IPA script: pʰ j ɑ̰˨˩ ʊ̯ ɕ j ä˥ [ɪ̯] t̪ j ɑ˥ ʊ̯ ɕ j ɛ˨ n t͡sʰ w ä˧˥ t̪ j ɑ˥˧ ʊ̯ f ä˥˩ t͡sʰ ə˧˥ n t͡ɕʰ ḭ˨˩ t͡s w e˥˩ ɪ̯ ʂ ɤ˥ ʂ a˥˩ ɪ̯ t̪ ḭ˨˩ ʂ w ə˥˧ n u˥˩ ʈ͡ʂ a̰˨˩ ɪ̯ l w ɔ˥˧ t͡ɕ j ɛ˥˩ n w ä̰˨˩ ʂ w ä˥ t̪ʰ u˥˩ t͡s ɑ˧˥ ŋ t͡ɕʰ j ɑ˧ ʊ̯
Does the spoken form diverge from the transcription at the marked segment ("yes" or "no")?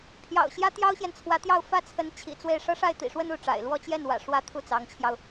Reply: yes